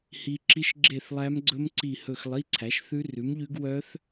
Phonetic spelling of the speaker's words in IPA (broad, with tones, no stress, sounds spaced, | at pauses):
h i˦˥ ǁ i˦˥ ʃ ɡ͡ǁ e˥˧ θ lˠ æ˦˥ m ɡ͡ǀ ɵ˦˥ m ǀ i˥˧ h ɵ˥˧ x lˠ i˧˥˧ ǀʰ æ˨˥ ʃ θ ʉ˦˥ r ʉ˨˥ m ʎ ʉ˦˥ ɡ w œ˦˥ θ